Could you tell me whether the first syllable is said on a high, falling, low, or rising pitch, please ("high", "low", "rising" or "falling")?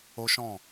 high